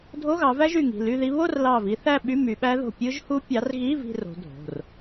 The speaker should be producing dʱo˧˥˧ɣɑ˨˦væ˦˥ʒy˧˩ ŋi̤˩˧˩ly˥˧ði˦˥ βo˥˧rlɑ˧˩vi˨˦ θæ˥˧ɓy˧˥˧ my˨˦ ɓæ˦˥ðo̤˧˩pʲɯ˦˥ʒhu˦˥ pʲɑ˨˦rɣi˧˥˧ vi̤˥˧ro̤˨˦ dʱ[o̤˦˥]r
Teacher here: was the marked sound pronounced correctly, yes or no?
no